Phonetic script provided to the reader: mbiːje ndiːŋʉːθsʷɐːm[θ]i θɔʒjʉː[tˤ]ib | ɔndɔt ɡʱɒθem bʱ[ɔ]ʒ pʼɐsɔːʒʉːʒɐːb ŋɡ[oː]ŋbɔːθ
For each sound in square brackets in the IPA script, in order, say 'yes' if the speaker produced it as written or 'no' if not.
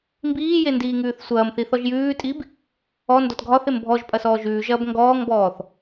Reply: yes, no, yes, no

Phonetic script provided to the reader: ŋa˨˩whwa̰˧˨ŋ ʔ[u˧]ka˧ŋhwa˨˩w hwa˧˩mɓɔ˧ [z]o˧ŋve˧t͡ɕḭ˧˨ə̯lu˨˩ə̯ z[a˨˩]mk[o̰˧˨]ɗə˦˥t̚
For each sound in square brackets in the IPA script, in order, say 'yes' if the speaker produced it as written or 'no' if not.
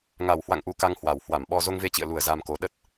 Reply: yes, yes, no, no

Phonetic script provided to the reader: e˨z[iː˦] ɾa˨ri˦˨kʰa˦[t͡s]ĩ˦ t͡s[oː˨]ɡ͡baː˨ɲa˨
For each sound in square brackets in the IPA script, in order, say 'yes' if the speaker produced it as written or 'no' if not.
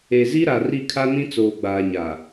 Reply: no, no, yes

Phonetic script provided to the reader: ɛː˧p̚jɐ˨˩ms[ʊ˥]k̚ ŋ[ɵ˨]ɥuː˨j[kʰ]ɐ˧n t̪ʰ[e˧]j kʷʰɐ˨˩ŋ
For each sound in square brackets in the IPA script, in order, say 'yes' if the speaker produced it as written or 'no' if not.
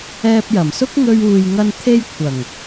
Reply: yes, no, no, yes

